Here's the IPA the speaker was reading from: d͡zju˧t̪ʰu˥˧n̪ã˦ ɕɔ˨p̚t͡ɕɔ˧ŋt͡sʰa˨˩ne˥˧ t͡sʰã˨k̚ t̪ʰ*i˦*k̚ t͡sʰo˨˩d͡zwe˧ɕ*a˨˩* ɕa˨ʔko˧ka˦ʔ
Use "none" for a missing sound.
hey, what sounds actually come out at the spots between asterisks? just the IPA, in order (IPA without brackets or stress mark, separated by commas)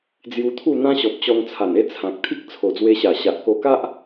i˦, a˨˩